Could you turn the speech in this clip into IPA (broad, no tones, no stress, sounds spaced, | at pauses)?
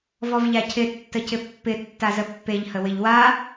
v ɔ v ʎ a cʰ ɪ tː ə c ɪ pː ɪ tː a z ə pː e ʎ h ə w ɪ ʎ w a